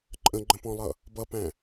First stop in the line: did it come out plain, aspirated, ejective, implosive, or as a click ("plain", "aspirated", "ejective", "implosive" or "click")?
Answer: click